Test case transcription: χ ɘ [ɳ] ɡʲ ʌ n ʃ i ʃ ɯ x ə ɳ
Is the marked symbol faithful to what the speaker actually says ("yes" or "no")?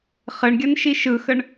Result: yes